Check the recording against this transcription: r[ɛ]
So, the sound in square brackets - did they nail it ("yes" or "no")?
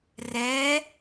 yes